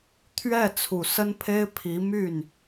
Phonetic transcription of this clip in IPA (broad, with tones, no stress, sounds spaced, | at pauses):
t̪ʰ ɥ ɛ˥˩ t͡sʰ u˨˩ s ə˥ n pʰ e˥ ɪ̯ pʰ i˧˥ m y˥˩ n